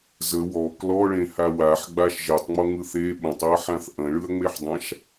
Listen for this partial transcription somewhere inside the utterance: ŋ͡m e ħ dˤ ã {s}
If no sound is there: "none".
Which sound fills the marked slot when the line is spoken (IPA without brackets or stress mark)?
ʃ